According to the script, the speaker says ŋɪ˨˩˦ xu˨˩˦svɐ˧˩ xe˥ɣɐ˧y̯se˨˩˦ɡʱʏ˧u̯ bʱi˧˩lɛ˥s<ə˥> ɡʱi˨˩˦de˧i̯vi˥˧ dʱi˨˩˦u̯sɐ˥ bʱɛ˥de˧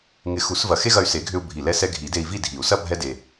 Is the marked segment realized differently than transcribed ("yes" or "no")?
yes